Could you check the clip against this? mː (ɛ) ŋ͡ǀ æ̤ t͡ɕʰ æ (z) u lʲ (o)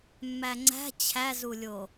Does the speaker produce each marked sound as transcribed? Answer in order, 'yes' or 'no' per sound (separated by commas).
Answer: no, yes, yes